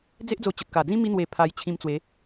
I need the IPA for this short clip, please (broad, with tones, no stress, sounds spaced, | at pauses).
d͡z e˦ ʔ d͡z o˧ t͡ɕ ə˨ t̚ k a˨˩ d͡z ĩ˦ m i˧ n̪ w e˨˩ pʰ a˧ j t͡ɕʰ ĩ˧ m t͡s w e˨˦